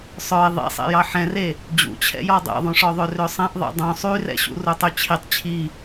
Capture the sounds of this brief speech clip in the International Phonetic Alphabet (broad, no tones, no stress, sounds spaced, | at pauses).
sˤ œ ɪ̯ ðˤ ḭ sˤ ḛ j ɑ ħ ɛ̃ r e | d͡ʑ ṵ t͡ɕʰ ɛ̰ j ɔ dˤ ɛ̰ ðˤ ũ ʂ ɔ ðˤ ø r ø sˤ ɛ̃ ʔ ðˤ ḛ dˤ ũ sˤ y r ɛ̰ ɕ ṵ r u tˤ y t͡ɕʰ i tˤ t͡ɕʰ i